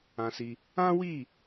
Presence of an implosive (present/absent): absent